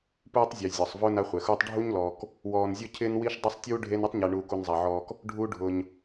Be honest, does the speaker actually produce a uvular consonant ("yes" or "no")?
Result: yes